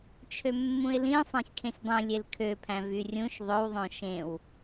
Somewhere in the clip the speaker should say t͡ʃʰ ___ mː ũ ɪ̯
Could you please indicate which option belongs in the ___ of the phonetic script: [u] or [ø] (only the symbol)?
ø